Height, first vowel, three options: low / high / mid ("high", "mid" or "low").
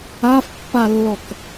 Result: low